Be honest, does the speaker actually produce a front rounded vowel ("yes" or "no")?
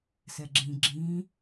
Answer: no